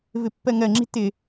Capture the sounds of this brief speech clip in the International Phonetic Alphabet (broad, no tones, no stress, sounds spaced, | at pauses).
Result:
v ɪ pː ɜ ŋ ɜ ŋ͡ǁ i̤ t ɪ